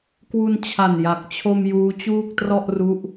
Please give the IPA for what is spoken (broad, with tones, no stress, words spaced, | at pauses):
kwu˧nt͡ɕʰa˨˩nja˨˩k̚t͡ɕʰo˧m juː˦˥t͡ɕuː˥˩k̚trɔ˥˩ʔ ru˦˥ʔ